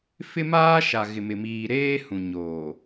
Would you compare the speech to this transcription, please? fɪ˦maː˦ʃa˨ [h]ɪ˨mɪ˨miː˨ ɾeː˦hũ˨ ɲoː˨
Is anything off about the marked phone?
yes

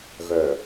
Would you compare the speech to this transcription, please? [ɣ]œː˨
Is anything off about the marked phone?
no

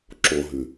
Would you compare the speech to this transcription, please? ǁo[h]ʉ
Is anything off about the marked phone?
yes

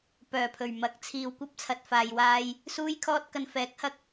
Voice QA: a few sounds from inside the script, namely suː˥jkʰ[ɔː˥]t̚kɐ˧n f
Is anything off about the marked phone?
no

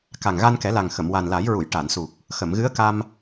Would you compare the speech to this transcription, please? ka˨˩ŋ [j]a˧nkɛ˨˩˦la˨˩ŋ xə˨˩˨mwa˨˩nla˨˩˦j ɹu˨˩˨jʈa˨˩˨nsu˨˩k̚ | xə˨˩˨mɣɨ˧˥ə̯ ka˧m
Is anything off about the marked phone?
yes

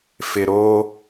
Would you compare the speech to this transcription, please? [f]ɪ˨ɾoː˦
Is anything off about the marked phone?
no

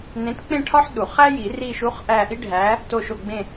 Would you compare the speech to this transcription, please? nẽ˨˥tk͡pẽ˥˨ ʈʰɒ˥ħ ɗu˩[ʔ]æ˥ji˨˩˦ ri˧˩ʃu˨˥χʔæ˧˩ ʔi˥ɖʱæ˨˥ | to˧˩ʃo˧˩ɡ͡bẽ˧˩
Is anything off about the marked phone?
yes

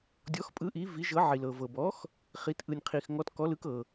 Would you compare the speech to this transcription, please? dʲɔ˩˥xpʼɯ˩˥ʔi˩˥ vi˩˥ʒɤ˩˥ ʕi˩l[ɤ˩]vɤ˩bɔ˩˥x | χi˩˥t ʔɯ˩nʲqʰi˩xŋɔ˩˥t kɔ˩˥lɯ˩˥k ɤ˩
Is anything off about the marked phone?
no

